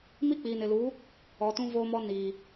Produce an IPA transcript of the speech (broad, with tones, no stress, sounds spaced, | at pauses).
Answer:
m i˦ k͡p iː˨ n ɪ˨ l uː˨˦ | ɔ˨ t ũ˦ v oː˦ m ɔ˦ n iː˨